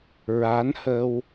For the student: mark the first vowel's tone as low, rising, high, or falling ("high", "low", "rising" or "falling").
rising